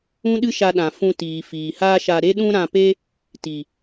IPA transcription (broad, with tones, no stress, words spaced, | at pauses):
ũ˦ɗɨ˦ʃa˧ ɗã˨fũ˧ tiː˨fiː˨haː˦ʃa˧ ɾe˦ɗũ˦ɾã˧pe˦ | ti˨